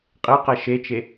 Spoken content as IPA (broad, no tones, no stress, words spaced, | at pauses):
qʼeqɛ ʃet͡ʃe